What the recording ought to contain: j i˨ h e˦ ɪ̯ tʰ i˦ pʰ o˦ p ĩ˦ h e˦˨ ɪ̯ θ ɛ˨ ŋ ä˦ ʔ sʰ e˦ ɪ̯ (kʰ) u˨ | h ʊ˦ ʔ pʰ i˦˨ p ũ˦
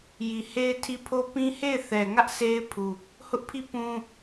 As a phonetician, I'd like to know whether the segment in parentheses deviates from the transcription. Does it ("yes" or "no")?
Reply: yes